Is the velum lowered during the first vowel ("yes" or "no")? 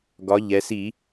no